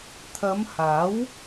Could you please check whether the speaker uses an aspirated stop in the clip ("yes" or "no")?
yes